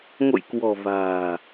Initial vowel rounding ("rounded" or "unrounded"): rounded